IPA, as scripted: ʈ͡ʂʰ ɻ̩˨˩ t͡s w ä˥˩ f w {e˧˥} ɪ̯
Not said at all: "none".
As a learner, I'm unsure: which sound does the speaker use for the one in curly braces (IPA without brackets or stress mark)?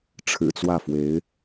e˧˥